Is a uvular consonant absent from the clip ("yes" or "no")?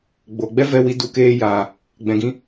yes